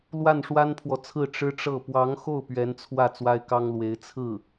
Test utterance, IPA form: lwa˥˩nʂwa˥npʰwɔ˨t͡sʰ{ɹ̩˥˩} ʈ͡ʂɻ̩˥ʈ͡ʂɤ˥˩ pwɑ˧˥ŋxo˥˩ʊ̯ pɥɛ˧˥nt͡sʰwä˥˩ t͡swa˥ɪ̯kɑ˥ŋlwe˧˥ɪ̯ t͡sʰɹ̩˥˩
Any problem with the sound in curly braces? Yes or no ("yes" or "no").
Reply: no